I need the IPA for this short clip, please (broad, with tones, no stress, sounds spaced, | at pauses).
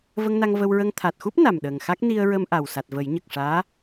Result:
v ə˧ ŋ n a˧ ŋ v ə˧ w ɹ ə˧ ŋ t̪ʰ a˨˩ t̚ x u˦˥ p̚ n a˨˩ m ɗ əː˨˩ ŋ x a˦˥ k̚ n i˧ ə̯ ɹ ə˧ m ʔ a˨˩ w s a˨˩ t̚ v ə˨˩˦ j ɲ ə˨˩ k̚ ʂ aː˧˥